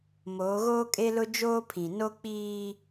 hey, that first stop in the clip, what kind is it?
ejective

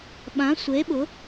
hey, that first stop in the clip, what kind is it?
implosive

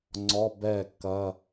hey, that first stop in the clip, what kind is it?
click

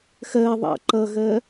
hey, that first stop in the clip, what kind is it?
click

